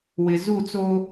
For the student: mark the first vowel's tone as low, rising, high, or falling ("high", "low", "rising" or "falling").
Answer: low